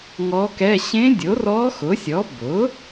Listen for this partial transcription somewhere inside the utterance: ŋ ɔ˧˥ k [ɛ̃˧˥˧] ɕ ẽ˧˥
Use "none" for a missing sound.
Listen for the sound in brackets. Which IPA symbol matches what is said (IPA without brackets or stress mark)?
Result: ɛ˧˥˧